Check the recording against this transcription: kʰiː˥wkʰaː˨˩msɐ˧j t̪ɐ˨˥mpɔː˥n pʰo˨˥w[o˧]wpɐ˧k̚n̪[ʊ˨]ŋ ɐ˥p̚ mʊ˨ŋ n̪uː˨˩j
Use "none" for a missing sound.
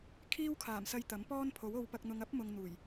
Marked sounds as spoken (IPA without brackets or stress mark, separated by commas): o˧, ʊ˧